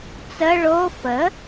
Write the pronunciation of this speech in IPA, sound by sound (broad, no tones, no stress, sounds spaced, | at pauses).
t͡s ə ɭ o f ə